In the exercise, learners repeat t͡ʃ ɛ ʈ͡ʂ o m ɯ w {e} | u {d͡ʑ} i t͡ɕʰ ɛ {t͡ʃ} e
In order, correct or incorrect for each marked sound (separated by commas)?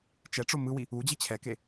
incorrect, correct, incorrect